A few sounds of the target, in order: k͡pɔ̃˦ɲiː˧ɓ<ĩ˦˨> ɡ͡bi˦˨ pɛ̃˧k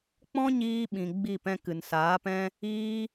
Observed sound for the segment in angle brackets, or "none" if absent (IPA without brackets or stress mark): ĩ˨